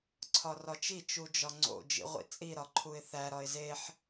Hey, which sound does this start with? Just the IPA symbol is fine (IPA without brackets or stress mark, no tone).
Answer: ǀʰ